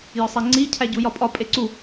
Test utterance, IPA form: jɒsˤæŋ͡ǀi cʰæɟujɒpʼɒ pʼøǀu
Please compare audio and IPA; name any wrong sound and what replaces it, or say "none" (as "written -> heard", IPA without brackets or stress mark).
ø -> e